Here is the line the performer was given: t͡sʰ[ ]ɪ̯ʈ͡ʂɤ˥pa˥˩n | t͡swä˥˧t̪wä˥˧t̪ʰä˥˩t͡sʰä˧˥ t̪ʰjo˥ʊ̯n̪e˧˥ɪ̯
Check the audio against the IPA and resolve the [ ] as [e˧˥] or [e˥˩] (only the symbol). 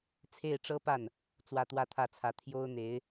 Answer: e˥˩